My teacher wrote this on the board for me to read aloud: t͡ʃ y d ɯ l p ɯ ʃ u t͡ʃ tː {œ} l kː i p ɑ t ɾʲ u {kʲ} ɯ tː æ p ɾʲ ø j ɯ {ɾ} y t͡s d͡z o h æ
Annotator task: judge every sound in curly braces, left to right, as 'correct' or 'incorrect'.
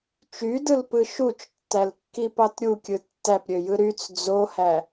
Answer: incorrect, correct, correct

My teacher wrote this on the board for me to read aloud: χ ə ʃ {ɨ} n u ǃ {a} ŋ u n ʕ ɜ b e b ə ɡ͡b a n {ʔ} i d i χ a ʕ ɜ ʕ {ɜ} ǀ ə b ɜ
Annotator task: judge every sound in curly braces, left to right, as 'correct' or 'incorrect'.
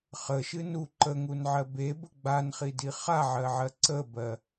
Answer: correct, incorrect, incorrect, correct

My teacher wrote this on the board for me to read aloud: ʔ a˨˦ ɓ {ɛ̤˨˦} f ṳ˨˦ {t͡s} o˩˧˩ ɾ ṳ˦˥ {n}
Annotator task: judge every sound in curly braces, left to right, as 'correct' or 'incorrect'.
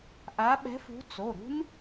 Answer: correct, correct, correct

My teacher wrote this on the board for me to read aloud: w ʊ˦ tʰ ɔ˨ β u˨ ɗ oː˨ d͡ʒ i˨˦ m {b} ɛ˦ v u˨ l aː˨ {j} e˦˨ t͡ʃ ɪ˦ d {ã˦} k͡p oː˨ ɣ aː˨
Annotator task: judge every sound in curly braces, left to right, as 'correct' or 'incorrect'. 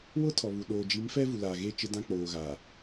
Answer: incorrect, incorrect, correct

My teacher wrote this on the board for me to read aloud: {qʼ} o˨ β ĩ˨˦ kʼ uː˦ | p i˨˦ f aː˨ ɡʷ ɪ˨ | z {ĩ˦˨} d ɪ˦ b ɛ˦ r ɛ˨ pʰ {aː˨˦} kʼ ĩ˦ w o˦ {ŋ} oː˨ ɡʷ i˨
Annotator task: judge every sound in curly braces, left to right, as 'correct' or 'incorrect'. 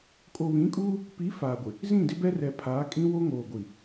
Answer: incorrect, correct, correct, correct

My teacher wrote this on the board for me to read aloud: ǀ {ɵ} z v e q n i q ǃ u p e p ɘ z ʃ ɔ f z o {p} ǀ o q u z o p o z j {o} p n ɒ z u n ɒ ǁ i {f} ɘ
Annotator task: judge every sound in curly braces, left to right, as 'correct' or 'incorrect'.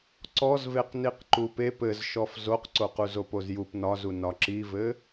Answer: incorrect, incorrect, incorrect, incorrect

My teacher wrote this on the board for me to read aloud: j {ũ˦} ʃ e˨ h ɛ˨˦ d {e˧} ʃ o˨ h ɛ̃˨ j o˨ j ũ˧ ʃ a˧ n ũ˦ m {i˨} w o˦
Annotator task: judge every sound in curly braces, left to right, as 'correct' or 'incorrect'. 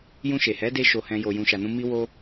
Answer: incorrect, correct, incorrect

